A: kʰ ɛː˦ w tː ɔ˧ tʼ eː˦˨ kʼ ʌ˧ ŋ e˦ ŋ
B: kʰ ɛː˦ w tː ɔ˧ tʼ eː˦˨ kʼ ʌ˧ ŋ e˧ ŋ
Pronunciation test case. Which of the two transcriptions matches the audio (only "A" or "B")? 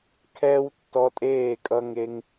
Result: A